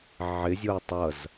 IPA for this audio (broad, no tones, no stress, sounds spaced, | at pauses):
ʕ ɪ zʲ o ə̯ tˤ ʌ z